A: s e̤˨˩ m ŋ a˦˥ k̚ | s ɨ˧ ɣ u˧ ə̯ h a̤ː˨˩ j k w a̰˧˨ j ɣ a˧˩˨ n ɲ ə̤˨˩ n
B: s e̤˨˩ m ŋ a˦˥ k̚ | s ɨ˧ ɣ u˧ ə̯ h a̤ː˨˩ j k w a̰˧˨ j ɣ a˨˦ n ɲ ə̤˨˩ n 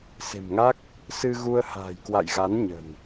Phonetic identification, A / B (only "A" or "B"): B